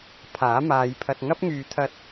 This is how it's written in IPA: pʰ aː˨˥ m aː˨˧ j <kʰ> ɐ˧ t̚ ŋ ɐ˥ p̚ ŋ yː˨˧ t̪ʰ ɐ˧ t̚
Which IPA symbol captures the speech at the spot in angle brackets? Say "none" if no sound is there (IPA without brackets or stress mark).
pʰ